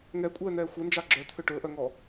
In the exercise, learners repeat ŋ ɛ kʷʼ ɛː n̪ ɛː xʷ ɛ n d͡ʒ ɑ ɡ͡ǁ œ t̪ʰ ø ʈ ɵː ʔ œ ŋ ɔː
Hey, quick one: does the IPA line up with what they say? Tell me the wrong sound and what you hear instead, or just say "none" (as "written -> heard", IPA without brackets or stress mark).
none